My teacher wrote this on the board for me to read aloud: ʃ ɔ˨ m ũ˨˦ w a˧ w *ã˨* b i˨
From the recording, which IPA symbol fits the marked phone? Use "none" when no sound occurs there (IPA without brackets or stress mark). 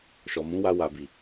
a˨